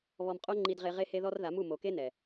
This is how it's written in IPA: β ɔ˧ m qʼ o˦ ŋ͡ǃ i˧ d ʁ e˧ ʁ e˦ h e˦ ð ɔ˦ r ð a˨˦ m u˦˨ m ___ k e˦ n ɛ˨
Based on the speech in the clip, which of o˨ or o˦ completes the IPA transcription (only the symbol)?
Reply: o˨